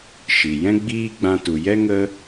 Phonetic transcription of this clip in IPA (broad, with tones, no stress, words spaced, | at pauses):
ʃi˨ jɛ̃˦ɡ͡biː˦ɡ͡bã˧ tu˨jɛ˦ ŋə˦